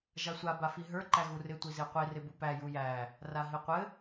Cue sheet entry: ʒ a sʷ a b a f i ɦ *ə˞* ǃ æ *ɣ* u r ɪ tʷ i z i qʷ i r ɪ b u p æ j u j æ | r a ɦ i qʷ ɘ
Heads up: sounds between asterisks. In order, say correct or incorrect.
correct, correct

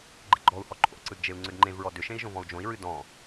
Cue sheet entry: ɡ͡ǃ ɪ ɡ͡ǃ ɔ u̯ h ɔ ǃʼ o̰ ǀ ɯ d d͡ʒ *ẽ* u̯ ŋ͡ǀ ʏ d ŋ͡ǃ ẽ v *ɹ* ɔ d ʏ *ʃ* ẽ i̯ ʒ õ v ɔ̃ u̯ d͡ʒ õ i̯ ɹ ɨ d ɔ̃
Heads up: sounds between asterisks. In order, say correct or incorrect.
incorrect: e, correct, correct

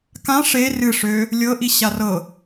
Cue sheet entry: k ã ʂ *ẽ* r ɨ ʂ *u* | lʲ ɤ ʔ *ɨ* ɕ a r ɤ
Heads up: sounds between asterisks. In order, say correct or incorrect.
incorrect: e, incorrect: ø, incorrect: i

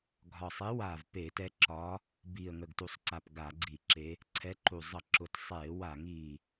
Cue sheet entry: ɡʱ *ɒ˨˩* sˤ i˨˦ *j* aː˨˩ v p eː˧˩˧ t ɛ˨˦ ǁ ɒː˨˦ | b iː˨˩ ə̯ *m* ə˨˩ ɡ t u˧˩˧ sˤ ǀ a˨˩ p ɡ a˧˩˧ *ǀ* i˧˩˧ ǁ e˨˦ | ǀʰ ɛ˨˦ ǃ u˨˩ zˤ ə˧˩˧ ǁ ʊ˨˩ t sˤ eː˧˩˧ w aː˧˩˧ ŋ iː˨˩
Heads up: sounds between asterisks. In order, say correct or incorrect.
correct, incorrect: w, incorrect: ŋ, incorrect: ɡ͡ǀ

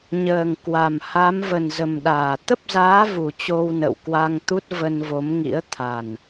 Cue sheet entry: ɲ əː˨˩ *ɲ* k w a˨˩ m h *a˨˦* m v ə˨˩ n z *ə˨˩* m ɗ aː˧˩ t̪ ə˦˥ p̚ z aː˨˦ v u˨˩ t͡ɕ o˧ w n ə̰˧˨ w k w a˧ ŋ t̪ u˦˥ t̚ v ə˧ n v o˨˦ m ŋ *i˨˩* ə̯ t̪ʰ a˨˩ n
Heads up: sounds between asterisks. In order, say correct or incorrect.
incorrect: ŋ, correct, correct, incorrect: ḭ˧˥

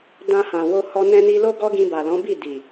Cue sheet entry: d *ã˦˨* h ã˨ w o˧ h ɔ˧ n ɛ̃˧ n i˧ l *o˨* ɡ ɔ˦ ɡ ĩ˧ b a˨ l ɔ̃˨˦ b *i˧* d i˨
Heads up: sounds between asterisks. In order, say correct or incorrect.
incorrect: ã˧, incorrect: o˦, incorrect: i˦˨

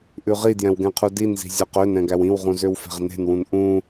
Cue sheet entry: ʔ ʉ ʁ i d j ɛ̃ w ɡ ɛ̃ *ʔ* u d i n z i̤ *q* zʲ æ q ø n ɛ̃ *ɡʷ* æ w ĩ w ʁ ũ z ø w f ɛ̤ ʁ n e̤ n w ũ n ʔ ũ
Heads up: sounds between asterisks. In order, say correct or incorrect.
incorrect: qʰ, incorrect: none, incorrect: ɡ

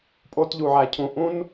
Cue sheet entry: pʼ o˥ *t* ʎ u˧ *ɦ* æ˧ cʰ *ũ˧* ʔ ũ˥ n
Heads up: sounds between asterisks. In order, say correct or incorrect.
correct, incorrect: ʕ, correct

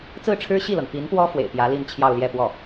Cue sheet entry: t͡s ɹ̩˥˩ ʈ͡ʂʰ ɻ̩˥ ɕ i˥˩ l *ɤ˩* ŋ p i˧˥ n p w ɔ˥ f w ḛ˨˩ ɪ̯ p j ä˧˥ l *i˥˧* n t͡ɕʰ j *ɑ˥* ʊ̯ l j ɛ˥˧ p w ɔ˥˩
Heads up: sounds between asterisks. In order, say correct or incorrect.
correct, correct, incorrect: ɑ˥˧

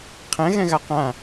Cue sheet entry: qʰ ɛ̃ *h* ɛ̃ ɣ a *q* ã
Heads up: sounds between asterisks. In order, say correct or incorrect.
incorrect: ɣ, correct

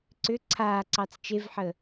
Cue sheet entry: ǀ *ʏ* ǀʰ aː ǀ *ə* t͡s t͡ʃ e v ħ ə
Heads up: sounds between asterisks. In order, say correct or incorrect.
correct, incorrect: ɑ

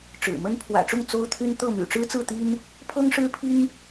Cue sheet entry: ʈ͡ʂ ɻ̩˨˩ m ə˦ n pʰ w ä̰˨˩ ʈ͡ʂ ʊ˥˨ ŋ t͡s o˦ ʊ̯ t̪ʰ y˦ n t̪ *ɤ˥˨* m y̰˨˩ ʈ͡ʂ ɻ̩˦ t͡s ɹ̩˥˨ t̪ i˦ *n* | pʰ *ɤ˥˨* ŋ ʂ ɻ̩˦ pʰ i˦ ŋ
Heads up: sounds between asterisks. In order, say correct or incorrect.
correct, correct, incorrect: ɤ˦

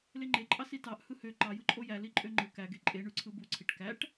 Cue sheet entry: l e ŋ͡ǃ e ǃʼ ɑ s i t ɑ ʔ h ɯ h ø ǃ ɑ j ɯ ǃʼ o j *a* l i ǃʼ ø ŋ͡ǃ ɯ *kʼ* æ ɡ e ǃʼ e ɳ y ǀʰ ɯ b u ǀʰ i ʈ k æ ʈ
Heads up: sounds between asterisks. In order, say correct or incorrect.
incorrect: æ, incorrect: k

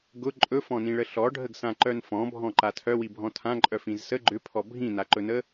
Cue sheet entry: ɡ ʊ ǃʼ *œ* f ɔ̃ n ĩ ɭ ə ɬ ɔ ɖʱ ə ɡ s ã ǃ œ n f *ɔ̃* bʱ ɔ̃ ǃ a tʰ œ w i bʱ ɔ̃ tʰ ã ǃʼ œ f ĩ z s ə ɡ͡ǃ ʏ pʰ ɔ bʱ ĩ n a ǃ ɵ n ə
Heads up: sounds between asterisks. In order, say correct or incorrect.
incorrect: ɵ, correct

